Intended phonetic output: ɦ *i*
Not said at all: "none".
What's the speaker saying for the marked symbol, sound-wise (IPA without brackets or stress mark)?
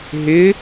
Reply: ɪ